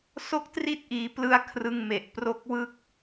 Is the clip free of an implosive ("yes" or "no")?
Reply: yes